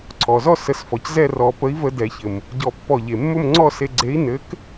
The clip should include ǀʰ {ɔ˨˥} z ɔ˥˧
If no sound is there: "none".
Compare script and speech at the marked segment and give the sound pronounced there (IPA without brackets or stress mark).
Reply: ɔ˩